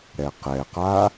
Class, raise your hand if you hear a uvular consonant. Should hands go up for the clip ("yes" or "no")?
yes